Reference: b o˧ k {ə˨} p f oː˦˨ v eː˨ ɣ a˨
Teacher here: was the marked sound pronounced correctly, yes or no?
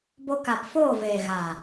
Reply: no